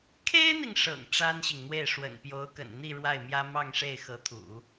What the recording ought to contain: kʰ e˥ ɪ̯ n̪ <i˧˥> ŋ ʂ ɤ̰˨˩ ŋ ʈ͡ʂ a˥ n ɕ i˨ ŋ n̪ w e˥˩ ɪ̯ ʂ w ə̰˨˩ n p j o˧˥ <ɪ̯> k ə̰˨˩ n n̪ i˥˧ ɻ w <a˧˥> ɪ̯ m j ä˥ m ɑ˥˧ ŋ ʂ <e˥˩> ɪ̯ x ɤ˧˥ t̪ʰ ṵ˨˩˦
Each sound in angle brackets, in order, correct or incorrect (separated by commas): incorrect, incorrect, incorrect, correct